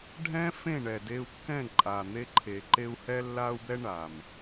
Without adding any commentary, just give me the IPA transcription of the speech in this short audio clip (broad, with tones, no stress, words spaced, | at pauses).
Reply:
ɖʱɛ̃˦fẽ˦˨ɳɛ˨ de˧u̯kːɛ̃˦˨ ǃʼa˨n̪e˧ǃʰe˨ǃe˧u̯ hɛ˧lːa˧u̯bɛ˧ ɳa˨m